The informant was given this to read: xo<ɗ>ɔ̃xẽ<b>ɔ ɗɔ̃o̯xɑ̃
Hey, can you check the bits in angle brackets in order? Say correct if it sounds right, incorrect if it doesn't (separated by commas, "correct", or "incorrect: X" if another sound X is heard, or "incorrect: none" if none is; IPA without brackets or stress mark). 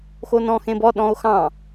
incorrect: n, correct